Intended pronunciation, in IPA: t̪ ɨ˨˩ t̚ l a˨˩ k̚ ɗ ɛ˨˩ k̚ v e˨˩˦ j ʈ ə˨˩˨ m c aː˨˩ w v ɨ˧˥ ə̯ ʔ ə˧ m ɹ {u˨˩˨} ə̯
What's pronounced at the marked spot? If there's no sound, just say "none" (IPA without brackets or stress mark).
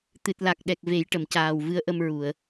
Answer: u˨˩˨